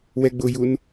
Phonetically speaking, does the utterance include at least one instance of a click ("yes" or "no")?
no